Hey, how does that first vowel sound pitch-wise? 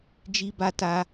high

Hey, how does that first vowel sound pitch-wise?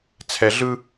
low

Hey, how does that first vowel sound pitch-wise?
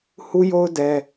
high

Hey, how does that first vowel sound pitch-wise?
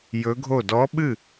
rising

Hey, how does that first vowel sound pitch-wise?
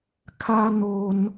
high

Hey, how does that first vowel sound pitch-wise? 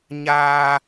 high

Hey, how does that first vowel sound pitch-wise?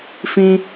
high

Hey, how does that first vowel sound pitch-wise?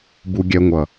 low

